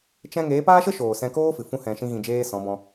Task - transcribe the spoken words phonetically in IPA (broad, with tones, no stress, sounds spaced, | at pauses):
t͡ʃ ɛ̃˦ ŋ eː˨˦ p aː˦ ʃ ə˦ ʃ oː˨ s ɛ̃˧ k oː˦ f ɨ˨ f ũ˦ h ɛ̃˧ ʃ ĩ˦ ɣ ĩ˧ d͡ʒ eː˦ s ɔ̃˨˦ b ɔ̃˧